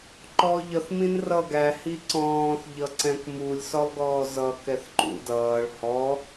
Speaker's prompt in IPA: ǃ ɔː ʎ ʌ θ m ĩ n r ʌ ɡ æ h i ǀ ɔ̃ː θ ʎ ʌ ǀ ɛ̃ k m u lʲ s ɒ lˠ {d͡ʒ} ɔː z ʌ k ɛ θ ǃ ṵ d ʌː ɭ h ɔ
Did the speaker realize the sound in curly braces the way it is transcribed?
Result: no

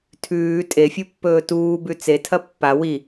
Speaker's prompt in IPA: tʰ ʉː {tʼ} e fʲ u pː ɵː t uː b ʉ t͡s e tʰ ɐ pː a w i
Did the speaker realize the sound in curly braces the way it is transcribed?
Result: yes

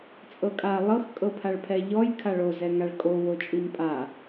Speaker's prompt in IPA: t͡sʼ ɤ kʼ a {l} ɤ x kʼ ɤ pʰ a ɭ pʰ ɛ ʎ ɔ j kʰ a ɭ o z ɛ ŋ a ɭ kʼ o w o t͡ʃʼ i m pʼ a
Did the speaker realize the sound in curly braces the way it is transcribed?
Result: no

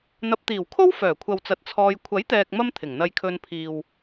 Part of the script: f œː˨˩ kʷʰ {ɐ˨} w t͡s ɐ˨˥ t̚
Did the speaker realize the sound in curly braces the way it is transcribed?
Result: yes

